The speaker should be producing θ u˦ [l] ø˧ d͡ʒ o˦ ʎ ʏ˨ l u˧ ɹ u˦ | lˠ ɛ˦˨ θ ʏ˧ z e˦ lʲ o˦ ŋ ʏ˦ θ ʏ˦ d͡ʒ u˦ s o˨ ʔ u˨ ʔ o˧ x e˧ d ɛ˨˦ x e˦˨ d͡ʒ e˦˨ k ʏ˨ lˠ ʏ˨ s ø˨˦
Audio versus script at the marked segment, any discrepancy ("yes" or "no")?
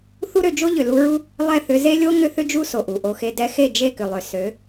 yes